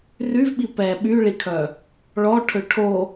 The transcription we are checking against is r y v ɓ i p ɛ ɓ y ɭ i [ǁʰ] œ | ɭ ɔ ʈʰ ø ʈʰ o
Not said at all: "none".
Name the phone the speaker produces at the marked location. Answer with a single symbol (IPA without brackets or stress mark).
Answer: kʰ